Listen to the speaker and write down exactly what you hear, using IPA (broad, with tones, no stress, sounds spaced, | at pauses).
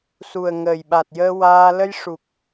s u˨˩ ə̯ ŋ əː˨˩ j ɓ a˨˩ t̚ j əː˧ w aː˧ l ə˧ j ʂ u˨˩ k̚